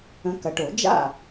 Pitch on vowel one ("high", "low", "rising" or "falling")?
rising